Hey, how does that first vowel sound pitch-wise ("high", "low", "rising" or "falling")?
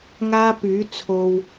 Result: high